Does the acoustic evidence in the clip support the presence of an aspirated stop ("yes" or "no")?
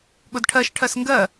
yes